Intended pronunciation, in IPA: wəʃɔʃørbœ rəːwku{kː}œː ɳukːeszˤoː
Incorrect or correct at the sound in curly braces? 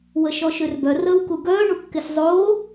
incorrect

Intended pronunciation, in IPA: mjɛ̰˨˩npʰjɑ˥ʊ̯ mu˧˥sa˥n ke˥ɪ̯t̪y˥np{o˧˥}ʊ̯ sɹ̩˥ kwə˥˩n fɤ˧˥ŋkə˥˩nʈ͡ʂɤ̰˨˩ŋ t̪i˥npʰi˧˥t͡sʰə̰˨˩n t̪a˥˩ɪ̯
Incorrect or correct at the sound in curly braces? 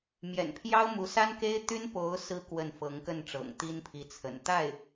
correct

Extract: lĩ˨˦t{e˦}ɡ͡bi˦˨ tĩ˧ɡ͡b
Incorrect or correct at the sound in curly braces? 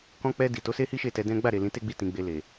correct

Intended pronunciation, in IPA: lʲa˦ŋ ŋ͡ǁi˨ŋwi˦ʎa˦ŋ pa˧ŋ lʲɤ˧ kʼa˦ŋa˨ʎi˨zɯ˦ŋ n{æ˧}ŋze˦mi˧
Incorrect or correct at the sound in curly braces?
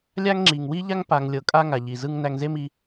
correct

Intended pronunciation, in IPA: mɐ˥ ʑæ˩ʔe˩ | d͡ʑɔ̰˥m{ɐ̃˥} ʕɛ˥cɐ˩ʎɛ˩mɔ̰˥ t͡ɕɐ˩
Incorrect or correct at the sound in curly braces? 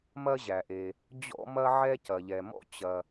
incorrect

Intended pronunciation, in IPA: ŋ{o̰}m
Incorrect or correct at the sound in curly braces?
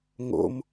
correct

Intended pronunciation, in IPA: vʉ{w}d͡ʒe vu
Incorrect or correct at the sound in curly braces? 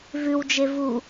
correct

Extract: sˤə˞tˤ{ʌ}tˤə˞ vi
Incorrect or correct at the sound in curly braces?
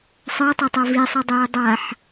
incorrect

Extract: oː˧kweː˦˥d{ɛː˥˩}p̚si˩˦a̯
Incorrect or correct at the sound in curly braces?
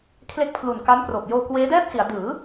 correct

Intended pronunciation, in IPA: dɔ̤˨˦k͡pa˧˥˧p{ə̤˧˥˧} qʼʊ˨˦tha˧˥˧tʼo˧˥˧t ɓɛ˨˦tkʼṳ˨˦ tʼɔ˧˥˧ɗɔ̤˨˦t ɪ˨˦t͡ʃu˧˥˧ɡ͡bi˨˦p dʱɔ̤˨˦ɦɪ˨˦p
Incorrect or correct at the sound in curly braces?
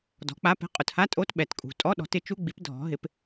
incorrect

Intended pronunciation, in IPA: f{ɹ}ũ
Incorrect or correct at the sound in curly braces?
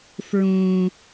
correct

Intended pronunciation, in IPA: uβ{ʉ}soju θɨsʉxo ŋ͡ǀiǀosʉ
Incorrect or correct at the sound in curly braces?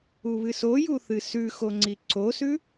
incorrect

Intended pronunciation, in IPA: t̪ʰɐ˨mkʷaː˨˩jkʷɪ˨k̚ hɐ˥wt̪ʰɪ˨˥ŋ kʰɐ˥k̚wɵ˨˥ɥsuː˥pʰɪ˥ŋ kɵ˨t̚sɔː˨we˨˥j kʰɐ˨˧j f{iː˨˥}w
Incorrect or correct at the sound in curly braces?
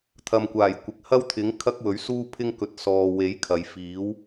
correct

